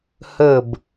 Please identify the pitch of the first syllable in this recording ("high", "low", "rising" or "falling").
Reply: falling